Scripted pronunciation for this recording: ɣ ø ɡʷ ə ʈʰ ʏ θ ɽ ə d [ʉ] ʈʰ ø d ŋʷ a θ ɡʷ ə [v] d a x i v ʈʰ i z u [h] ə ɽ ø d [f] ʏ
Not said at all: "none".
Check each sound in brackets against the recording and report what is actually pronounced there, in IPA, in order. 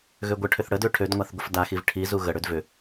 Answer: ø, f, ɣ, v

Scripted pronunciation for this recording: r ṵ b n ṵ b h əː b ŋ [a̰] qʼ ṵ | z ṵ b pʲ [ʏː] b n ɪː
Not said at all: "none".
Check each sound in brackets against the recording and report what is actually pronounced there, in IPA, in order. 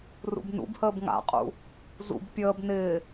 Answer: a̰, əː

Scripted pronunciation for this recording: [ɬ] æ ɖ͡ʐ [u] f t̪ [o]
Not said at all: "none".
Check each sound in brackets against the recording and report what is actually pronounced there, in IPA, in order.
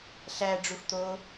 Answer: ɬ, u, o

